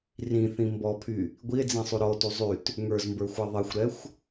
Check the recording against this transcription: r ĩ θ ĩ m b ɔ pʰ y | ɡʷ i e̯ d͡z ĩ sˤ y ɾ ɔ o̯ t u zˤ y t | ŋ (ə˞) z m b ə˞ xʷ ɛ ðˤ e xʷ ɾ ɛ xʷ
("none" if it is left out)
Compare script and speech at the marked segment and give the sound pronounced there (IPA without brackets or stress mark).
ə˞